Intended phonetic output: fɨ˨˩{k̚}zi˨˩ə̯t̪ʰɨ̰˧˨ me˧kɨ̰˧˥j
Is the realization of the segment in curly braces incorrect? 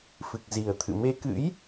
no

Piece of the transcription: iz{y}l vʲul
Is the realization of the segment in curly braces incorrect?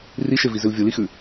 yes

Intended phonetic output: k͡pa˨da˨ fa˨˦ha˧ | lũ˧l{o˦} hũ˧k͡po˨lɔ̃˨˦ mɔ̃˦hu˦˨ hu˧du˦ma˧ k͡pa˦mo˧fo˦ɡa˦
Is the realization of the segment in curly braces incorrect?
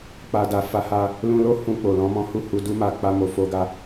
no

